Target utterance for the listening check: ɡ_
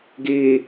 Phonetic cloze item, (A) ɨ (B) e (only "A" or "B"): B